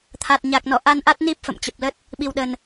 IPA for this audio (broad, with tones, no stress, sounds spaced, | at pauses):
t̪ʰ a˨˩ t̚ ɲ a˨˩ k̚ n ɔ˧˩ ʔ a˧ n ʔ a˦˥ t̚ n i˦˥ p̚ f ə̰˧˨ m t͡ɕ ə˨˩ p̚ l ə˦˥ t̚ | ɓ i˨˩ w ɗ ə˨˩ n